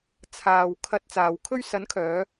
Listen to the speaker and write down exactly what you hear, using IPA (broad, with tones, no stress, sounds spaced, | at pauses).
t͡sʰ aː˨ w kʰ ɐ˧ t̚ t͡s aː˨ w kʰ ɵ˧ ɥ s ɐ˨˥ n kʰ œː˨˧